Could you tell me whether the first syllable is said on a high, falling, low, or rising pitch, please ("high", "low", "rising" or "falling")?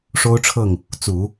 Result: high